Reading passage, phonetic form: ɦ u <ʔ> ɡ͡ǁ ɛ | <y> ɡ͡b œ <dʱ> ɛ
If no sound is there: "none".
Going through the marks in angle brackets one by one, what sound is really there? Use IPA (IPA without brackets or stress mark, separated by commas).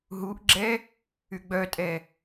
ʔ, y, tʼ